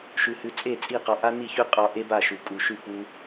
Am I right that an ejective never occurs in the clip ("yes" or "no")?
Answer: no